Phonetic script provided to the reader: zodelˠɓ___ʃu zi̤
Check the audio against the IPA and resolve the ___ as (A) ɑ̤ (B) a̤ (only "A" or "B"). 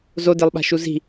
B